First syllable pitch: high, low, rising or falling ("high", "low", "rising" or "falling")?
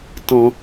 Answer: low